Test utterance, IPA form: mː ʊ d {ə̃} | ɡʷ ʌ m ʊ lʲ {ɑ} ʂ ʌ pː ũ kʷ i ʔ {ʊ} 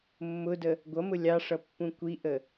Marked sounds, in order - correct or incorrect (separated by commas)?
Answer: incorrect, correct, incorrect